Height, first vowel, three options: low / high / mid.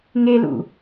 mid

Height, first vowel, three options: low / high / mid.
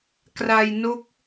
low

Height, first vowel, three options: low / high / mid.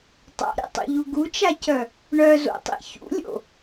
low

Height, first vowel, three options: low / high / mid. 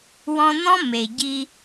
mid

